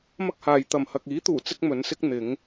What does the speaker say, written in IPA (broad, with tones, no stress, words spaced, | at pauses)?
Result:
mɐ˥k̚haː˨j t̪ɐ˨˩mhɐ˨k̚iː˨˥t̪uː˨˩ t͡sɪ˥k̚mɵ˨˧nsɪ˥k̚ n̪ɪ˨˧ŋ